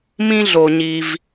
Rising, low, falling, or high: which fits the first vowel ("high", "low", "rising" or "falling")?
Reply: high